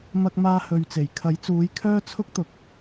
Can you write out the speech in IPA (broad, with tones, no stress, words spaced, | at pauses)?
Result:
mɐ˧k̚maː˧ hɵ˨ɥt͡se˨˩jkʰɐ˨˥jt͡suː˨˥j kʰœː˥t͡sʰʊ˥k̚ t̪ʊ˨k̚